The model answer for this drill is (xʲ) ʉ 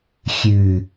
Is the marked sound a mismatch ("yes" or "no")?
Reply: no